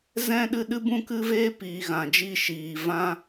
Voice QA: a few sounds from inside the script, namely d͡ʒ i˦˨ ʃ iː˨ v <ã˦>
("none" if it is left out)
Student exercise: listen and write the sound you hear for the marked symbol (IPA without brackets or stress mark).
ã˦